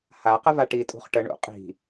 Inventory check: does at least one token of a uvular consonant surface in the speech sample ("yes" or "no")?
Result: yes